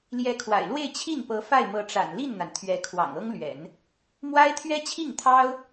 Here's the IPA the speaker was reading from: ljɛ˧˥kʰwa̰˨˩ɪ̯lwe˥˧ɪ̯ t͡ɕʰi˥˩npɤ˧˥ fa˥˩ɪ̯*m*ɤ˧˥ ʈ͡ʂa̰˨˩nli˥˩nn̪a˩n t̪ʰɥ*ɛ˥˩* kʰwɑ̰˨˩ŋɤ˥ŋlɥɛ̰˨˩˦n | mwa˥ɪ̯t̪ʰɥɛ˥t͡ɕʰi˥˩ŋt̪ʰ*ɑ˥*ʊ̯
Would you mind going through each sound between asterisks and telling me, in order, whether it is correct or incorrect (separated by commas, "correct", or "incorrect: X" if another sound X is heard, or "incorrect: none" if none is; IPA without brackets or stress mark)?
correct, incorrect: ɛ˧˥, correct